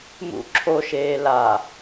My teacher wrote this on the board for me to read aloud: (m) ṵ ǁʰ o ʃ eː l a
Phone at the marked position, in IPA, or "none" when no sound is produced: m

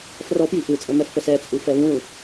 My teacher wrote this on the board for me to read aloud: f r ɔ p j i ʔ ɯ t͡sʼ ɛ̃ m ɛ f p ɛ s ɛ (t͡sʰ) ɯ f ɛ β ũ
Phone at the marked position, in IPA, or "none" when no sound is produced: t͡sʼ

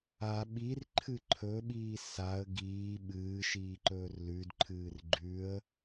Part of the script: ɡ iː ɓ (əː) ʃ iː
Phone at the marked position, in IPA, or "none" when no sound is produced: ɨː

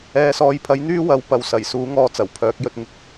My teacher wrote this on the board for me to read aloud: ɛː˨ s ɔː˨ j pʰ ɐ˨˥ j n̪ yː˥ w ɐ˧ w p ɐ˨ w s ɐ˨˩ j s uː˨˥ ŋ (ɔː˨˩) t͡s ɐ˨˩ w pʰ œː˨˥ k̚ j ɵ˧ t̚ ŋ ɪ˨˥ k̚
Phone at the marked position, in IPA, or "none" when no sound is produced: ɔː˧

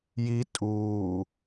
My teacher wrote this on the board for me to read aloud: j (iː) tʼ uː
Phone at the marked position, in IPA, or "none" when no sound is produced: i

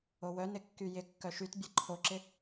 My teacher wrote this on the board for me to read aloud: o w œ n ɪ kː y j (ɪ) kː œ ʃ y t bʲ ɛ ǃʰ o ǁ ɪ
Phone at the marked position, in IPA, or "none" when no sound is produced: ɪ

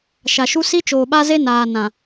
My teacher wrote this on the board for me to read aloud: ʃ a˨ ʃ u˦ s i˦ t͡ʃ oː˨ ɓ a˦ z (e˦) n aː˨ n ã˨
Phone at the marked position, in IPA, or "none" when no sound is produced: e˦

